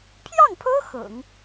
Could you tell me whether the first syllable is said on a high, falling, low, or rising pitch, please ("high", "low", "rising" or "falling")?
falling